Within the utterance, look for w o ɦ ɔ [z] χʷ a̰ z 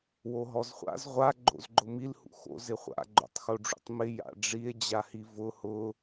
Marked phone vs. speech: correct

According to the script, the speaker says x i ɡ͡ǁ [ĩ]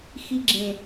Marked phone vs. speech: incorrect: ẽ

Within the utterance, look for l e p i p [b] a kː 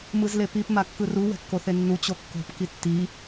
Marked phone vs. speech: incorrect: m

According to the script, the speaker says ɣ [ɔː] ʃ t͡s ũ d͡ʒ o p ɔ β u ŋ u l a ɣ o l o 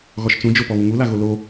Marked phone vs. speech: incorrect: ɔ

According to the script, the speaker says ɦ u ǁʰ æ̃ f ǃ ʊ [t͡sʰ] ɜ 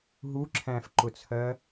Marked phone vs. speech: correct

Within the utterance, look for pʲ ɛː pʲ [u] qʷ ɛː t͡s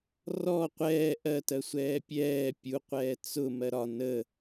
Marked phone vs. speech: correct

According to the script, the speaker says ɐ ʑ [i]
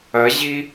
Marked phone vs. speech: correct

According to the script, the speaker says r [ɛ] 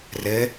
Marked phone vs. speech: incorrect: ɘ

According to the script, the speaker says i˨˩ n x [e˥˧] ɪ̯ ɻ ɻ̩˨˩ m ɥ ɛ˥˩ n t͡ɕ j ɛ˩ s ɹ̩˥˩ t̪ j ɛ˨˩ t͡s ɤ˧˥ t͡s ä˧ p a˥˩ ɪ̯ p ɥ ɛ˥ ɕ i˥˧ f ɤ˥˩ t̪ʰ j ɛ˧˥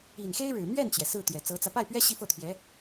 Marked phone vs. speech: incorrect: e˥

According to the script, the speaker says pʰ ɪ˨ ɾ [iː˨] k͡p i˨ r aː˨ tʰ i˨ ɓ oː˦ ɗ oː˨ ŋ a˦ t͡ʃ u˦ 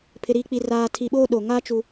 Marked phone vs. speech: correct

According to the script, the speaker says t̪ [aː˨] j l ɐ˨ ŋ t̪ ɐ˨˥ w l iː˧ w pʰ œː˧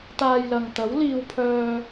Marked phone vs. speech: incorrect: aː˧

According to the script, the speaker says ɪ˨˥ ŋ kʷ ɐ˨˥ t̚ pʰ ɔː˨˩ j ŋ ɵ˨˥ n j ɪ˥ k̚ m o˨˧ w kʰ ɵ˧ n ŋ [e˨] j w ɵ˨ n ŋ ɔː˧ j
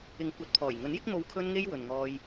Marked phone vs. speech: incorrect: e˧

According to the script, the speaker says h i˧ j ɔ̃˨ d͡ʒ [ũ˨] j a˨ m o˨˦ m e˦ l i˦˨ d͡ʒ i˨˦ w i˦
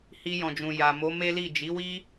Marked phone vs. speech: correct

